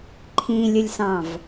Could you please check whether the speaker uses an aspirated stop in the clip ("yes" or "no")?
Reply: yes